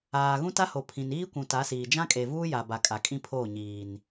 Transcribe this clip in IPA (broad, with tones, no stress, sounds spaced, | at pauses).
aː˨ ɣ ũ˦ t a˦ h o˨ pʰ ĩ˨ n iː˦ kʷ ũ˨ t a˨˦ s iː˨ d͡ʒ ã˦ kʼ e˨ v uː˦ j a˨ b a˨ kʼ a˨ kʼ ĩ˦ pʰ oː˦˨ ɲ iː˨ n